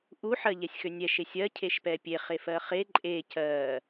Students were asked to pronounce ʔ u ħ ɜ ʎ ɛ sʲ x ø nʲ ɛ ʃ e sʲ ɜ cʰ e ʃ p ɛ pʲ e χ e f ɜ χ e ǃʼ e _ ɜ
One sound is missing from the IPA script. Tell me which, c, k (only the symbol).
c